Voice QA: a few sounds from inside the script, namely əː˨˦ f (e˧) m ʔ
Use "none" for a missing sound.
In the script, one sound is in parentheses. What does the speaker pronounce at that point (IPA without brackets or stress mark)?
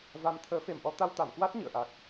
e˨˩